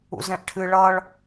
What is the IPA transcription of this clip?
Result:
ṵ z ɛ̃ ʔ ʈʰ ɨ ɭ ʌ ɭ

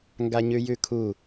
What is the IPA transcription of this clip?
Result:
ŋ ɡ a ɲ ʉ j ʉ kʰ u

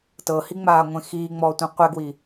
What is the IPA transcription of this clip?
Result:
t ɤ h i ŋ͡m aː ŋʷ ẽ x iː ŋ͡m ɔː tʷ ẽ qʷ ɛ ɡ w i

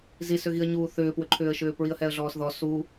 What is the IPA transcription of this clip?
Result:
z i s ʏ ɣ i ə̯ ɲ uː θ ʏː p w ʏ ǃʰ ʏː ə̯ ʃ ʏː p ɹ i ə̯ h ɛ ə̯ ɮ ɔː s ð ɔ s u

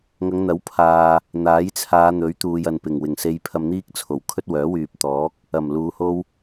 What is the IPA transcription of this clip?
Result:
ŋ ɐ˨˧ ŋ n̪ ɐ˨˥ w pʰ aː˨ | n̪ aː˨˥ j t͡sʰ aː˨˧ n̪ ɵ˨˥ ɥ t̪ uː˨ j ɐ˨ n p ɪ˨˩ ŋ w ɪ˨˩ ŋ s e˧ j pʰ ɐ˧ m n̪ iː˥ k̚ t͡sʰ o˨˩ w kʰ ɵ˥ t̚ w œː˨˥ w yː˨ p̚ t̪ ɔː˨˥ k̚ | ɐ˨˩ m l uː˨˧ h o˥ w

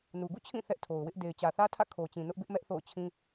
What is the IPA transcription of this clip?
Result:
n u˨ ɡ ṵ˦˨ t͡ɕʰ ĩ˦˨ θ ɛ˦ ʔ tʰ o˨ ʊ̯ w ɪ˦ ʔ d e˨ ɪ̯ t͡ɕ ä˨ θ ä˦ tʰ ä̰˦˨ kʰ o˨ t͡ɕ ĩ˨ n ʊ˦ ʔ b ɪ˦ ʔ m ɛ˦ ʔ θ o̰˦˨ ʊ̯ t͡ɕʰ ĩ˦

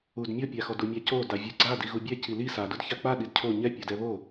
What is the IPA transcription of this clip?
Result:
u d mʲ o pʲ a x ɔ d u mʲ a c o d a vʲ u ɡ͡ǀ a d i ɣ u bʲ ɛ c i l i s a d u d ç a k͡p a ɗ i d cʰ o ɲ ɛ pʲ o d ɛ β o

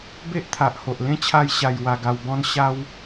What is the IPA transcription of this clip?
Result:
b e˦ ʔ t̪ʰ a˨ ʔ h o˨ ʔ l ẽ˦ t͡ɕʰ a˧ j ɕ a˧ j w a˧ ɡ a˧ w b ɔ̃˦ n ɕ a˦ w

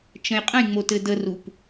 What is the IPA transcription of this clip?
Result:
t͡ʃ ə̃ j qʼ ə̃ j ŋ͡m o t ɘ d ə r u p

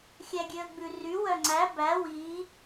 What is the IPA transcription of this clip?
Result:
xʲ æ ɡʲ ø ə̯ ɡ͡b ʉ r y w œ ŋ͡ǀ æ b æ w i

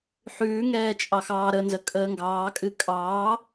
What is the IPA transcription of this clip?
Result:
ħ ʉː ŋ ɛː t͡ʃʼ ɑ x ɑː ɾ ə n z ə kʼ əː ŋ ɡ ɑː kʼ ɨ kʼ ɑː

